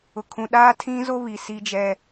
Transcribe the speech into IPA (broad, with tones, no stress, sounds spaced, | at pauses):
ʊ˨ kʰ ũ˨ ɗ aː˦ tʰ ĩ˦ z o˦ β i˨ s i˦ d͡ʒ ɛ˦